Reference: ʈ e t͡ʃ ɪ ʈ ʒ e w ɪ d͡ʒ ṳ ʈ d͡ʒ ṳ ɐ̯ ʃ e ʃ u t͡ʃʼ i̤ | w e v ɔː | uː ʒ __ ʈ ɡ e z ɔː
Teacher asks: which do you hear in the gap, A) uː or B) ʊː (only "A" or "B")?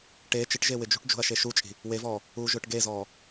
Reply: B